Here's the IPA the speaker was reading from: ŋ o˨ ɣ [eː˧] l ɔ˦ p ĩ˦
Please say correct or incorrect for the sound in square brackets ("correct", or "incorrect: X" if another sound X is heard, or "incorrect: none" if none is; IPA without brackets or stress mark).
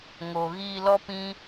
incorrect: iː˧